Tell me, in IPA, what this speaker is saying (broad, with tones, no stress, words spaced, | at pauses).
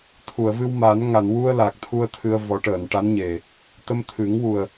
t̪ʰu˨˩˨ə̯vɨ˧w ma˨˩˦n ŋa˨˩˨nwu˧ə̯ la˨˩k̚t̪ʰu˧ə̯ t̪ʰɨ˧ə̯vɔ˨˩˦ ʈəː˨˩˨nʈa˧˥nɲe˨˩ | t̪ə˧mt̪ʰɨ˨˩˦ŋwu˨˩ə̯